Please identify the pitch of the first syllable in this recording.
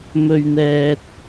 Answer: low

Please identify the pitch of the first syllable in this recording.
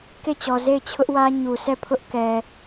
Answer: falling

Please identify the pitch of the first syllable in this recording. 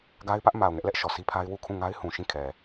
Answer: high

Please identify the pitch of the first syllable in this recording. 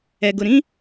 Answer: low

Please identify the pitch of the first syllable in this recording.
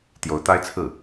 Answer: rising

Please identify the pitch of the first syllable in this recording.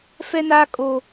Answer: high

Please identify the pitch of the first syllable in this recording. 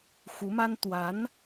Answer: rising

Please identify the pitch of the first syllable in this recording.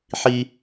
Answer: high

